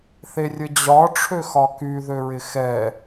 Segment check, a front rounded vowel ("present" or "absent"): present